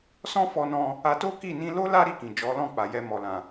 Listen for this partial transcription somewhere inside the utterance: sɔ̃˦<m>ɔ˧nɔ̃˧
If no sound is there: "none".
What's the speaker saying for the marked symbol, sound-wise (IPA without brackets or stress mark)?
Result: f